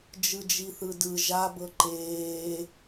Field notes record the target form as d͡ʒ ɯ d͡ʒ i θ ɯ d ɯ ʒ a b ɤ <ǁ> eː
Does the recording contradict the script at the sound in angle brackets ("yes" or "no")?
yes